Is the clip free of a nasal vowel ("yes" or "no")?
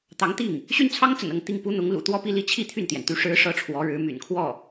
yes